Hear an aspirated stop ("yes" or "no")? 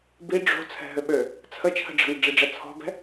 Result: yes